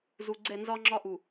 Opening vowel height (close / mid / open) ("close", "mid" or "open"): close